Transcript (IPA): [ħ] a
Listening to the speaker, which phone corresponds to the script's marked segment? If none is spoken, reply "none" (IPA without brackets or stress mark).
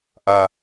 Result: ʔ